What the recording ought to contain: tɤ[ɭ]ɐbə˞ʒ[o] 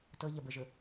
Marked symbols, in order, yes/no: no, no

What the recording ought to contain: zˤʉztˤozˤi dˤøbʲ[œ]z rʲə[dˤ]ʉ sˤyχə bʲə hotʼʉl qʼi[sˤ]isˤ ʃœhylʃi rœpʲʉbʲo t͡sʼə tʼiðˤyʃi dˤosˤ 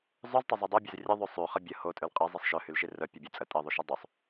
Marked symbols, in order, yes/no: no, no, no

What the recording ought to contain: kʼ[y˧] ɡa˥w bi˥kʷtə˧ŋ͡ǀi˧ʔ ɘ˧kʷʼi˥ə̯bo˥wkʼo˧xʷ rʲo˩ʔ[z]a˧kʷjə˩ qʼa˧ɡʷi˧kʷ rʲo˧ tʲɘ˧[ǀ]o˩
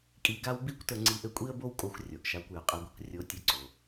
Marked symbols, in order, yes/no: no, no, yes

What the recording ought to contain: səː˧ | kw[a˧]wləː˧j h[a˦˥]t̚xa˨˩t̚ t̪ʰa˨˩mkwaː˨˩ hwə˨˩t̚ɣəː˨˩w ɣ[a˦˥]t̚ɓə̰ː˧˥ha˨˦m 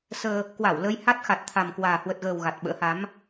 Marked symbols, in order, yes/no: no, yes, no

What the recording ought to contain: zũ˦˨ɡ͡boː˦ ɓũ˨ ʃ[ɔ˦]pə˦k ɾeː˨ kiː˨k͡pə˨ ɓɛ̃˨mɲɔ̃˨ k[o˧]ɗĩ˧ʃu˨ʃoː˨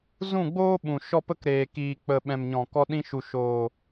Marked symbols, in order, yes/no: yes, no

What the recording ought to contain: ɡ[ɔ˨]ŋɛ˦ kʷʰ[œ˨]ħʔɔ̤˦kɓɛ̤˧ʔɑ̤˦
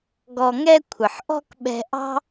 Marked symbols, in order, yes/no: no, no

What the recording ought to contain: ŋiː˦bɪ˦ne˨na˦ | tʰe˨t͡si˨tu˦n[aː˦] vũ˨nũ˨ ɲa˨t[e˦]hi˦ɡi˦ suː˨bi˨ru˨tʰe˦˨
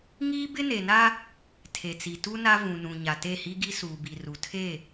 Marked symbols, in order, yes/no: no, no

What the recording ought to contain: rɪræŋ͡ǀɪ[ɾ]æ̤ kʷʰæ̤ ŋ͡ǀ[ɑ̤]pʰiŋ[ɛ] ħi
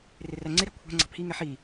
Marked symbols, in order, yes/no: yes, yes, yes

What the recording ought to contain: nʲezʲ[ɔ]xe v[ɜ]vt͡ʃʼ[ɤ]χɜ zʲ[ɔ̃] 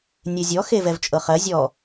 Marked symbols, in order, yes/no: yes, no, yes, no

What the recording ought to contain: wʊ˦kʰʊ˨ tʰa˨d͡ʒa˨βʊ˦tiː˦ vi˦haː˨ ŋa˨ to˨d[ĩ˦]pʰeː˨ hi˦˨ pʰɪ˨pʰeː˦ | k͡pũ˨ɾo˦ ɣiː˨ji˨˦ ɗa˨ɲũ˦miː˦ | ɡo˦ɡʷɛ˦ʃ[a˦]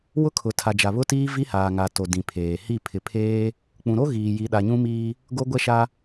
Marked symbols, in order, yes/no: no, yes

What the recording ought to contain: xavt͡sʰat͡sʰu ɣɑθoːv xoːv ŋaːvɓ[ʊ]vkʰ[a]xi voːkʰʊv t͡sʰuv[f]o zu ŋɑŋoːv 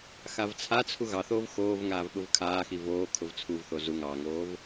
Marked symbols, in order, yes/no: yes, no, no

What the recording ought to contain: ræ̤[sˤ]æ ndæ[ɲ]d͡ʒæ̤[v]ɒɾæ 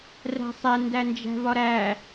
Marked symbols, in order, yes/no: yes, no, yes

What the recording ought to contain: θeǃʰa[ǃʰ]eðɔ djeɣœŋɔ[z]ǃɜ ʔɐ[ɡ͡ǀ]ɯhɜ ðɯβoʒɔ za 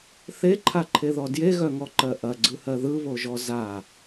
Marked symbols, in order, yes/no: yes, no, yes

